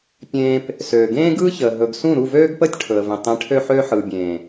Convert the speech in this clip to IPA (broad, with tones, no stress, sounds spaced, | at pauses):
pʲ ẽː˧ p | s øː˨ ɡ ẽː˦ ɡ ɯː˦ ç əː˨ ɦ ɵ˨ ɡ s ũ˦˨ ɾ u˦˨ v øː˦ ɡ p əː˦ tʲ ʈʰ ɵ˨ ə̯ v ẽ˨ tˤ ẽ˨˦ ʈʰ ø˧ ħ øː˧ ħ ɯː˨ bʲ ẽː˨